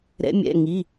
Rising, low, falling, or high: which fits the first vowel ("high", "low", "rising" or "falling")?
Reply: rising